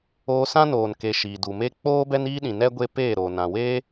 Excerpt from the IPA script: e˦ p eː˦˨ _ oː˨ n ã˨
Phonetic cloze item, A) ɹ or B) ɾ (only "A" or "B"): B